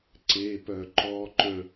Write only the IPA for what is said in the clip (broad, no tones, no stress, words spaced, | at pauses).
ǀepœ ǃɔǃœ̃